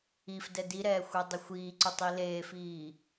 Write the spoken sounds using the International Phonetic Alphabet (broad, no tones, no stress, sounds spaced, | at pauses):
i f d ɛ d i ɾ ɛː xʷ e dˤ ɪ xʷ iː ǀ ʊ tˤ i l eː f iː